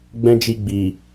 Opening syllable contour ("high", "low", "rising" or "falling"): high